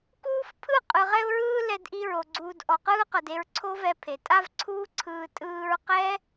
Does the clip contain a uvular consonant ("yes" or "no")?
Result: yes